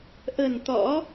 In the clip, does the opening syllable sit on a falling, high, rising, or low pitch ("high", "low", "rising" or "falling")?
low